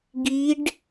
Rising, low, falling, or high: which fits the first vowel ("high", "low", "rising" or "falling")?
rising